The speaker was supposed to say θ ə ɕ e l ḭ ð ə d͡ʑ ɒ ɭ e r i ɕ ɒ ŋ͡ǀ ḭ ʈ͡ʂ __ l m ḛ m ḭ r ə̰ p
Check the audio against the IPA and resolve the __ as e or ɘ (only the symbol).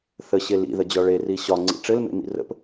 ɘ